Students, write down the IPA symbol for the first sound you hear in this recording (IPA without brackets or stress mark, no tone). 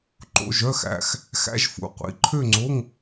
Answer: ǃ